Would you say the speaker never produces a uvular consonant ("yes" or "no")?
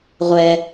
no